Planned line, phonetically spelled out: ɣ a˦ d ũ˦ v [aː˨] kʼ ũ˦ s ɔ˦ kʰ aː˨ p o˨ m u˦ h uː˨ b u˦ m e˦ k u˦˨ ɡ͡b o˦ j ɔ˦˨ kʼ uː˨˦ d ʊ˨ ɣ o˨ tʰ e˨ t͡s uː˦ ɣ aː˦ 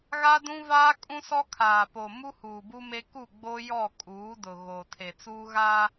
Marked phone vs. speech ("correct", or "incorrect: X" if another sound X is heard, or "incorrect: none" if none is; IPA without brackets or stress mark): incorrect: aː˦